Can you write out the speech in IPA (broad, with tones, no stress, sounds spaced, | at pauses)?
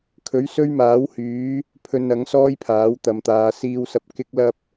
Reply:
kʰ ɵ˨˥ ɥ s ɵ˥ ɥ m aː˨˥ w h yː˨˥ | pʰ ɵ˧ n ɐ˨˥ ŋ s ɔː˥ j pʰ aː˨˥ w t̪ ɐ˨˧ m t̪ aː˨˧ s iː˨ w s ɐ˨ p̚ k ɪ˥ k̚ l ɐ˥ p̚